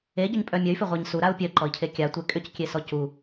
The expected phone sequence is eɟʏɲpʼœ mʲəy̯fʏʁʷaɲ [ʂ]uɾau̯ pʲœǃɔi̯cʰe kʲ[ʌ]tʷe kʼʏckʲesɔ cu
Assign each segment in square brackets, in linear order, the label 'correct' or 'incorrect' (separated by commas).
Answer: incorrect, incorrect